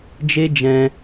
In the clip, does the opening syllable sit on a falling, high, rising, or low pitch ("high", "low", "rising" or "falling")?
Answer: high